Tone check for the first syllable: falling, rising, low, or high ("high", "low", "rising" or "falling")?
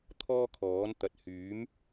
high